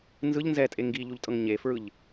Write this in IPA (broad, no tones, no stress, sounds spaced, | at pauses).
n z ɯ ʎ n z ɛ tʼ e ŋ ɡ i ʎ u ʎ tʼ ɤ ŋ ɲ e f ɹ ɯ ʎ